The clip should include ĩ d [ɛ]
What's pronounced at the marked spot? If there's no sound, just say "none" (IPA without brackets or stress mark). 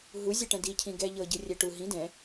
ɛ̃